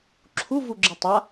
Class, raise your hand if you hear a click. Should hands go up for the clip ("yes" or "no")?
yes